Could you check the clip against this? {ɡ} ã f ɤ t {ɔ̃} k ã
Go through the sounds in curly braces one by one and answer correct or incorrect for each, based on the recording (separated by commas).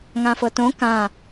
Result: incorrect, incorrect